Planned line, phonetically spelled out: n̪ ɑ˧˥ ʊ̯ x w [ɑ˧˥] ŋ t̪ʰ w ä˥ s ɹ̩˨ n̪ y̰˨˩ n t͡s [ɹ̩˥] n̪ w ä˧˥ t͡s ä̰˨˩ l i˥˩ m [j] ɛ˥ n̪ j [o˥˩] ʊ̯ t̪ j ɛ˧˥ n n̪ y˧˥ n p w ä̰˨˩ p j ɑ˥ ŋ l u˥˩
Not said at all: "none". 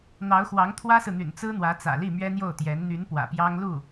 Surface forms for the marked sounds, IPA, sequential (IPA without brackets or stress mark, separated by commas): ɑ˧˥, ɹ̩˥, ɥ, o˥˩